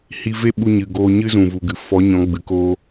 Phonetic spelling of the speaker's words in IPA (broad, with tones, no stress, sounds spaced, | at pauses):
h i˧ v e˦ ɓ u˧ ɲ ɨ˨ ɡ oː˧ ɲ ɨ˦ z ũ˨ v u˨ ɡ ɨ˨ f ɔ˨˦ ɲ ɔ̃˨˦ ɡ͡b ɨ˨ k oː˦